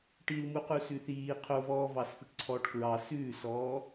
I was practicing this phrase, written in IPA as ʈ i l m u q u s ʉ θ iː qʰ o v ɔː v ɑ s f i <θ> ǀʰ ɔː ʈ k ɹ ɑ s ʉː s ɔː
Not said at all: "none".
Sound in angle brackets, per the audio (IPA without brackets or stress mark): ʈ